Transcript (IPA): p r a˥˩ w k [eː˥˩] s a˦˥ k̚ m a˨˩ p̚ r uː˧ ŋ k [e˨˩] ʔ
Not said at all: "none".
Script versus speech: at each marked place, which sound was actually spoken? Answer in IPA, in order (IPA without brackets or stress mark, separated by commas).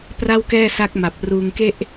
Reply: ɛː˥˩, e˥˩